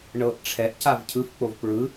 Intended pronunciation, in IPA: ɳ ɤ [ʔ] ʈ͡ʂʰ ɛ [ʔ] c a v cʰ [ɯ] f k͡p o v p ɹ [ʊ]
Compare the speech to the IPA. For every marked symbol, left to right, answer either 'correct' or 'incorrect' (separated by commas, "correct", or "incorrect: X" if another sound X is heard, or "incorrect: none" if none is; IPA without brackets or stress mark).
correct, correct, correct, incorrect: ɯ